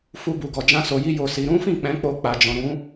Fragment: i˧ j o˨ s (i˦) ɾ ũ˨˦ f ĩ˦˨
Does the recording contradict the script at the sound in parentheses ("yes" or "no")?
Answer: yes